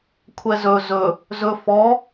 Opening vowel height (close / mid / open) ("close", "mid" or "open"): mid